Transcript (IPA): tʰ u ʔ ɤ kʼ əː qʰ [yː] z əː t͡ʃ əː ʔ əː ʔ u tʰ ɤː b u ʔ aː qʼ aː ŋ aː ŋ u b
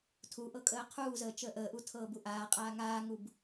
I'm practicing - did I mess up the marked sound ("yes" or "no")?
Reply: yes